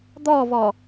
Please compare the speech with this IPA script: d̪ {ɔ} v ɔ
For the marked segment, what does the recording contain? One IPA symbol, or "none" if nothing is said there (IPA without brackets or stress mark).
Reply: ɔ